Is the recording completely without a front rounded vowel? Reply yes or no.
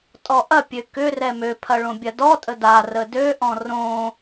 no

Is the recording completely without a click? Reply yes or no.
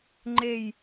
no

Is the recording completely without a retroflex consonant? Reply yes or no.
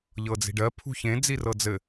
no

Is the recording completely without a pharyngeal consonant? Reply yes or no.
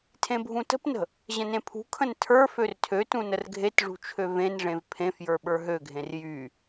yes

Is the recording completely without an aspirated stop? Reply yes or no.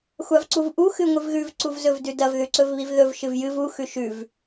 yes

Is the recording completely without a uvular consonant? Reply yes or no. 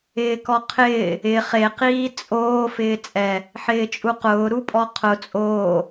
no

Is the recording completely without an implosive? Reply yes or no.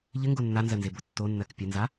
yes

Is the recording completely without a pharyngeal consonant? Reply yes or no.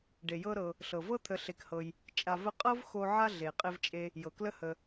no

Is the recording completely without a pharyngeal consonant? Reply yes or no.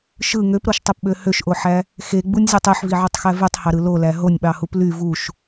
no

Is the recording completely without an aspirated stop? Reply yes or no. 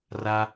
yes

